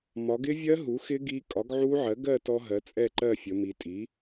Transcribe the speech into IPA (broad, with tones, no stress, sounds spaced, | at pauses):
m ɒ˩˧ ɡ ɪ˦˥ vʲ ɜ˦˥ ɦ u˩˥ x ɪ˦˥ ɡ i˦˥ kʼ ɒ˩˥ ɡ ʕ u˦˥ ʕ ɜ˩˥ ɡ ɜ˥˧ t ɔ˦˥ ɦ ɜ˩˥ t͡sʼ ɛ˥˧ ǃ ɜ˥˧ fʲ ə˩˧ m i˩˧ tʼ i˩˥